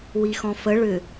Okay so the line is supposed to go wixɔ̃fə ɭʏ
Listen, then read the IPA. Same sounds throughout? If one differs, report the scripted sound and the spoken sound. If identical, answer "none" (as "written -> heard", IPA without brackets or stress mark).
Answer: none